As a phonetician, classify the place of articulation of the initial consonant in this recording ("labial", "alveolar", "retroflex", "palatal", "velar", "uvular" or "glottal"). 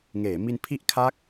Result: velar